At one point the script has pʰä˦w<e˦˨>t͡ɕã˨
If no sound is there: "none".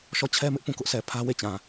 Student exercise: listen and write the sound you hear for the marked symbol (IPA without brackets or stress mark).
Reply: e˦˨